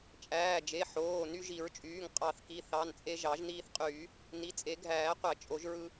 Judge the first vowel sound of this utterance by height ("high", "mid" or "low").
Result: low